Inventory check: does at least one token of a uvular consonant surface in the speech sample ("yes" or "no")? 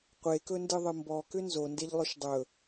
yes